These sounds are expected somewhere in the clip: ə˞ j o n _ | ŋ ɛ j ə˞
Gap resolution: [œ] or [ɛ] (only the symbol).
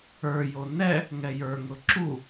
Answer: ɛ